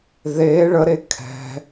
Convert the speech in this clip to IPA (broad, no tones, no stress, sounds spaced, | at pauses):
ð e ɭ ə ɾ e kʰ ɛ̤